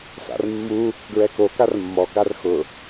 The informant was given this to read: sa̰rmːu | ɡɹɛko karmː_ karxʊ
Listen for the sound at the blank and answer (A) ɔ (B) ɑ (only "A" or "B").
A